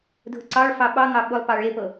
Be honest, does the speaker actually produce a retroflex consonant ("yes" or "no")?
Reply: yes